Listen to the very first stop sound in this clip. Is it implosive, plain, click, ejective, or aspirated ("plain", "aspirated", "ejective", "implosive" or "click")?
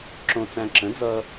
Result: click